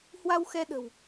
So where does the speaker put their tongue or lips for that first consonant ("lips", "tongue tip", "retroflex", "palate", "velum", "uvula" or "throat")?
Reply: throat